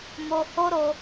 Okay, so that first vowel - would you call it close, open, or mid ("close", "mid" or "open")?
mid